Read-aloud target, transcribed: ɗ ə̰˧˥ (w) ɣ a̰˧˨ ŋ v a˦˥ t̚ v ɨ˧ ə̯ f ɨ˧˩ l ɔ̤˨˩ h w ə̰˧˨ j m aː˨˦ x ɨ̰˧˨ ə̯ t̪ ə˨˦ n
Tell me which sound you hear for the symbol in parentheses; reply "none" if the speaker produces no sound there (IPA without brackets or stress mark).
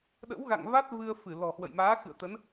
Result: w